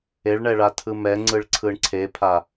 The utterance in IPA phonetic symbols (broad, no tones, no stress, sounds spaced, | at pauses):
e ɭ ɳ ɛ ɭ a tʰ ɯ m ɛ ŋ͡ǀ ɯ ɭ ǀʰ ɯ ɳ ǀʰ e pʰ a